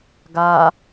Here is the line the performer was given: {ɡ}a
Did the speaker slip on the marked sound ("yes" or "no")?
no